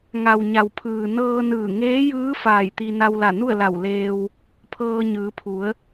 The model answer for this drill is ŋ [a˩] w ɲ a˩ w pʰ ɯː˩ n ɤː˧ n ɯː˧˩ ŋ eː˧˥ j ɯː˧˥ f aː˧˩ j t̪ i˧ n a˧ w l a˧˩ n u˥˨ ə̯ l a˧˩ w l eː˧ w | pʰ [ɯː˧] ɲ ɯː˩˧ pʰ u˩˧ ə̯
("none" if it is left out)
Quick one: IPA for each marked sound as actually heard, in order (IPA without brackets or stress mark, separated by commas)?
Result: a˩, ɤː˧